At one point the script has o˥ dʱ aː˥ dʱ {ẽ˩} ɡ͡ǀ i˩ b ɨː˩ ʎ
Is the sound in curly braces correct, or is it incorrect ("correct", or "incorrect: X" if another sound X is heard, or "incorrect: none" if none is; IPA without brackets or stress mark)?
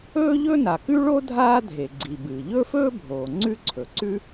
incorrect: e˩